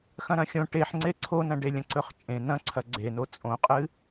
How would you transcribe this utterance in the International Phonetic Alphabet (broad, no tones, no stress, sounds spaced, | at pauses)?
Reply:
x ɐ̃ ɾ ɐ̃ xʲ õ ʈ e ħ ŋ͡ǀ e ǀʰ o n ɐ̃ ɖ e lʲ ɐ̃ ǀ ɵ χ t͡ʃʼ ẽ n̪ ɐ̃ ǀʰ ɐ ɡ͡ǀ e n o t͡sʼ õ qʼ ɨ